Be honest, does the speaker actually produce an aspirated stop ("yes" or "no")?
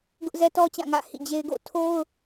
yes